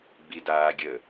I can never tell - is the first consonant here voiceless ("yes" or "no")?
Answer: no